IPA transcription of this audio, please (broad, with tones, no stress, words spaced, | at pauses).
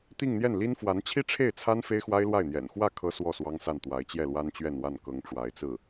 t̪i˥˧ŋn̪jɛ˥˩nli˥n fwa˧˥nt͡ɕʰi˥ʈ͡ʂʰe˥˩ɪ̯t͡sʰa˥n fe˥ɪ̯xwa˥ɪ̯lwa˥˩ɪ̯n̪jɛ̰˨˩n xwä˥˩ kʰɤ˥swɔ˥˩ swɑ˥ŋsa˥˩n t̪wa˧˥ɪ̯t͡ɕjɛ˥˩lwa˥nt͡ɕɥɛ˥˧n wa˥˩n kɤ˧˥ŋʈ͡ʂwa˧˥ɪ̯t͡sɹ̩˥˩